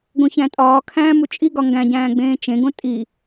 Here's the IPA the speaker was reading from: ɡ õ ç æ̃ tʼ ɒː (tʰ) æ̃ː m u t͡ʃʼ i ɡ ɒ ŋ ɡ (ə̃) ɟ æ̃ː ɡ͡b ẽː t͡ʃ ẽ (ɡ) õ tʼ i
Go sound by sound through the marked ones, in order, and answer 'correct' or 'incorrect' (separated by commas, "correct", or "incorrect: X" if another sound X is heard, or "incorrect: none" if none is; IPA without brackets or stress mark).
incorrect: kʰ, incorrect: æ̃, correct